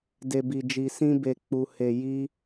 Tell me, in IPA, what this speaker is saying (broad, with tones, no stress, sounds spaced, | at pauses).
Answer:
d e˨ b i˨ d͡ʒ i˨ s ĩ˧ b e˨ k͡p u˨ h e˨ j i˧